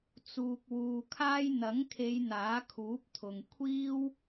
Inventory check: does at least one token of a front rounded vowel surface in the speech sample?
no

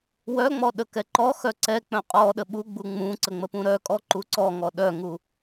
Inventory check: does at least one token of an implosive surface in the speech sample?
yes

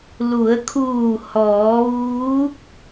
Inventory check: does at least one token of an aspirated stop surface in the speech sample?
yes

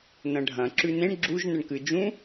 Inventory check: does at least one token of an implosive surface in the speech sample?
no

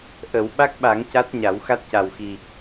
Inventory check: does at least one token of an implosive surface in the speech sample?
yes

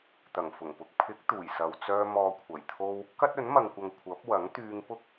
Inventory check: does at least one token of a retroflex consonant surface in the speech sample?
no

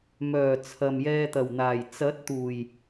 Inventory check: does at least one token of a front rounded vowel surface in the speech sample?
yes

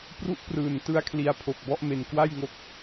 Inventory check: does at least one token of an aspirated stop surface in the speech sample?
yes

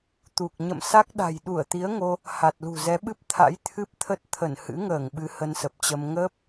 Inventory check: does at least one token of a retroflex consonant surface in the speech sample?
no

